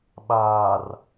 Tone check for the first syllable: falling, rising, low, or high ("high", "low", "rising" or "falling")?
low